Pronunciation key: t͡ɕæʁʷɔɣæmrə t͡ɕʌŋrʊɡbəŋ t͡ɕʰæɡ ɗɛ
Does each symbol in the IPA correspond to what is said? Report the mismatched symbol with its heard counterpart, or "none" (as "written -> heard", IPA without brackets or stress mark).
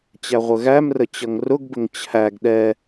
ɔ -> ə